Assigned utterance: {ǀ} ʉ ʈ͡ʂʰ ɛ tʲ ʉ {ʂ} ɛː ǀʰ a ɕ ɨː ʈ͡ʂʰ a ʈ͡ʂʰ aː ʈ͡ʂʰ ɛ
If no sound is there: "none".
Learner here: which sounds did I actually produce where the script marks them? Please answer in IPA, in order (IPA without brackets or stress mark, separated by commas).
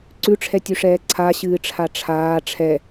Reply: ǀ, ʂ